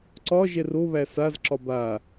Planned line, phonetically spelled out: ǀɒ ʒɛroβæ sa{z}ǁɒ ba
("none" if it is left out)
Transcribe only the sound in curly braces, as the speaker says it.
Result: z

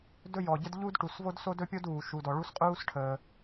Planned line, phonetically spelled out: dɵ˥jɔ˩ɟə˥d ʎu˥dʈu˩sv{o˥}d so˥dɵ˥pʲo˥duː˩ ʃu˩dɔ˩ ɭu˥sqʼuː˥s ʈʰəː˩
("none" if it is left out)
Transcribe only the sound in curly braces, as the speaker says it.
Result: o˥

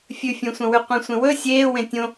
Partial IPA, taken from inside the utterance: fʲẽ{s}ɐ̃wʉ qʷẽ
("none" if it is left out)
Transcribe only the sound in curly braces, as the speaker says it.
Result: sʷ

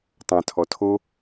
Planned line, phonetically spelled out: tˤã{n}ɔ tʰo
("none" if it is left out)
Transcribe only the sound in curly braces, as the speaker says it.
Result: tʰ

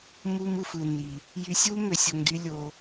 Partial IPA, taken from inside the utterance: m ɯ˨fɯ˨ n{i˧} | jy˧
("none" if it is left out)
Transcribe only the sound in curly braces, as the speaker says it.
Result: i˨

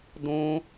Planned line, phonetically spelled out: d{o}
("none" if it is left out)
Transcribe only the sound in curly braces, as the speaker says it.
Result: õ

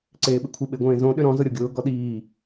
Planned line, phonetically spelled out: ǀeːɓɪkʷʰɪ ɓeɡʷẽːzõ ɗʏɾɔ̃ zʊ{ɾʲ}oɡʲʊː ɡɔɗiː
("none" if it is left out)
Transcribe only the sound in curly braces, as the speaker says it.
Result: ɾʲ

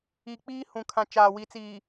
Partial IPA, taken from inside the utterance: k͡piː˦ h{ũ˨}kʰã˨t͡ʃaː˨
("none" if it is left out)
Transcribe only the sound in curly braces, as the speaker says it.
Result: ũ˨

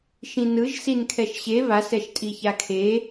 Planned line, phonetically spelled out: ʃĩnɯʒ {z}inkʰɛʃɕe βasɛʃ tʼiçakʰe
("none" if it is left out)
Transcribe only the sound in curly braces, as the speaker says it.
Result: s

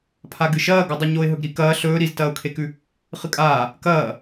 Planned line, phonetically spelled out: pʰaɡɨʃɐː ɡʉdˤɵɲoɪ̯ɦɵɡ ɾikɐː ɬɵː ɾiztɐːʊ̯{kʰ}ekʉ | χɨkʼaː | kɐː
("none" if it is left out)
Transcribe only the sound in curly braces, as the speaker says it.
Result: kʰ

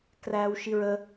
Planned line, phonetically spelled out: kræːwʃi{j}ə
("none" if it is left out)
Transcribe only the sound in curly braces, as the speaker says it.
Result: ɹ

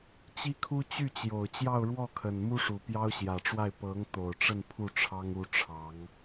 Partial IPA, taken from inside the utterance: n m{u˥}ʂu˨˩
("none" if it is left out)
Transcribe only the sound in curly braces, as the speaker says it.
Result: u˥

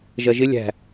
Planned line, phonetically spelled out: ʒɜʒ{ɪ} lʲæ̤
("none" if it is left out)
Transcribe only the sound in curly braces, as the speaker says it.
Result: ɪ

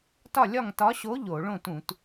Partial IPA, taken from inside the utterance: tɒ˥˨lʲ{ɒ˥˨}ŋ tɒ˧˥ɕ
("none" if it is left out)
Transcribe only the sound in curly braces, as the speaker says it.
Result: ɒ˥˨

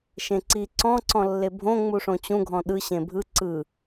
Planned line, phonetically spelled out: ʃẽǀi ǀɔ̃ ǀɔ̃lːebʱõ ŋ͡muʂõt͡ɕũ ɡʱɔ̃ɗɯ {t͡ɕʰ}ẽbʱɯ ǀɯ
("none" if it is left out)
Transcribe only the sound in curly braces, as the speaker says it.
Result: ɕ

